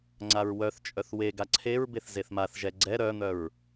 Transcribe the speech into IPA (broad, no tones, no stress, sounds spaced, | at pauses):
ŋ͡ǀ a ɹ w œ θ t͡ʃʼ œ θ w e ɡ a ǀʰ e ɹ b e θ z e θ m a θ ʒ ɛ ɡ͡ǀ ɛ ɾ œ n̪ œ ɹ